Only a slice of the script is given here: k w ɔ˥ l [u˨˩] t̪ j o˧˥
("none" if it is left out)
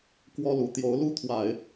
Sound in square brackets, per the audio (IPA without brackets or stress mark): u˨˩